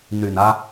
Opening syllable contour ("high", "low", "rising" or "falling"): low